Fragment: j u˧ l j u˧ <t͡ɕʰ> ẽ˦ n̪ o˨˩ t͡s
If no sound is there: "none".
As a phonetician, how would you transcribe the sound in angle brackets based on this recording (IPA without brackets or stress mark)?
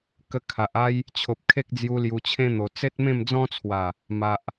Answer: t͡ɕʰ